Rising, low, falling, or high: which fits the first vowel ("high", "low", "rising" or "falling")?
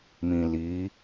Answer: low